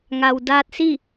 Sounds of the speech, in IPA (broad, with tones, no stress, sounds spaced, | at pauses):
ŋ a˩ w d aː˧ t̚ s i˥˨